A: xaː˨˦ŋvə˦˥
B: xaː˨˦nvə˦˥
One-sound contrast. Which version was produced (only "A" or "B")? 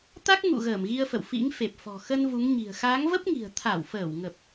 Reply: A